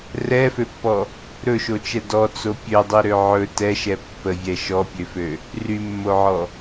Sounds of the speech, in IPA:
rɛføpːɔ | ɾɵʃot͡ʃɛ dɔt͡so pʲødˤiɾø ʕɵ tɛʃɛ pːəvʲɛ ʃɔpʲøfø | rymːoʕɔ

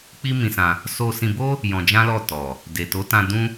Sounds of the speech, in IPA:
k͡pi˦mĩ˧sã˧ | so˧sĩ˧bo˦ | jɔ̃˧d͡ʒã˦lɔ˦˨ tɔ˨ | de˨to˨˦ tã˧ dũ˦

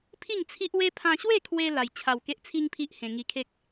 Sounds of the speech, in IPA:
pʰi˥˧ŋt͡sʰi˦ʔwe˦ pʰã˧ɕwe˥˧kʰwe˧ la˧j t͡ɕʰa˧wke˦ʔt͡sʰi˦ŋpʰi˦ʔ hẽ˧ ŋi˧kʰe˦k̚

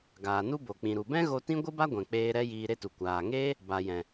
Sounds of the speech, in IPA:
ɡaː˨nu˦bo˨ k͡pĩ˨ɾu˨bɛ̃˦ ɣo˧tĩ˦ ɡʷɨ˦ba˦ɡʷɛ̃˨ k͡peː˧ɾɛ˦ jiː˧ɾe˦tu˨ kʷaː˨ŋeː˦ | ba˨jɛ̃˨

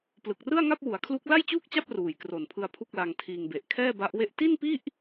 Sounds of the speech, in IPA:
plɯ˨˩k̚rɯ˥˩a̯ŋa˥˩p̚ wu˩˦a̯kʰlu˦˥k̚ la˥˩jt͡ɕuː˥˩k̚t͡ɕa˥˩p̚ ruː˨˩jkro˨˩npʰɯ˧a̯ pʰu˥˩k̚la˧ŋtʰiː˧ŋ be˨˩ʔkʰɛː˥˩ba˦˥ʔwe˥˩ʔ ti˥˩npi˥˩ʔ

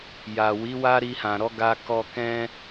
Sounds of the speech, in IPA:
ja˨wi˨˦ wa˦ɾi˧hã˨ɾɔ˨˦ ɡa˧kɔ˧ kɛ̃˦

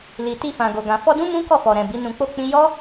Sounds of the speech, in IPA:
li˨ti˧fã˨ɡo˨ ɡã˨fɔ˧dũ˦ mũ˦kɔ˦˨fɔ˨ɾɛ̃˨ bi˨˦nũ˧k͡po˦k͡pĩ˦ jɔ˦

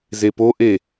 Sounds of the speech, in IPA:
zepoʔe

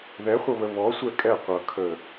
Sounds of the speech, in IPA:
ðɛχʷʌβə βɔsʷɛ kʼɛ qʷʌ kʰə

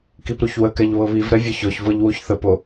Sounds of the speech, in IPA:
kipɾuçwəkɛʎ βɤβivɾɛ vʲʌçɔçvɤʎ wuçθəpo

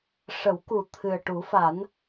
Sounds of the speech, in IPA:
ʂə˨˩˦wku˨˩ t̪ʰɨ˨˩ə̯ʈu˨˩˦fa˨˩˦n

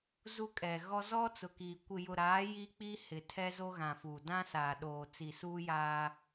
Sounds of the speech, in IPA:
zu˦kʼɛ˨ɣɔ˦ zɔ˦t͡sʊ˨kiː˨ kʷɪ˨jʊ˨ɾaː˨˦ ji˦k͡piː˦ hɪ˨ tʰɛ˦zo˦ɣã˨fu˨ dã˦saː˨ ɗoː˨t͡si˨suː˦ jaː˦

